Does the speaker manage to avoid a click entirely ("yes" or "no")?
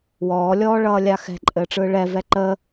no